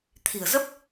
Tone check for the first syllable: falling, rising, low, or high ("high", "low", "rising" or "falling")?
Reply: low